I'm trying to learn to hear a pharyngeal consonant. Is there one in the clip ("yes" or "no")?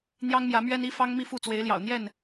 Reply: no